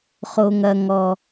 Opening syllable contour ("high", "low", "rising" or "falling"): low